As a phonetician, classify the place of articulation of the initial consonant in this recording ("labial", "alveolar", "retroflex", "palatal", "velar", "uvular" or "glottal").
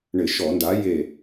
retroflex